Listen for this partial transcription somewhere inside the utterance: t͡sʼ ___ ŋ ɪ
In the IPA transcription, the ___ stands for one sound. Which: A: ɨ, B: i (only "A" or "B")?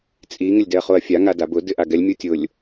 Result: B